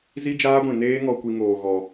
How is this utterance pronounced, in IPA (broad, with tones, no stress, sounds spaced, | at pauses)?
z i˦ d͡ʒ aː˦ ɡʷ ĩ˨ n eː˦ ŋ ɔ˧ kʷ i˧ ŋ oː˨ ɣ ɔ˨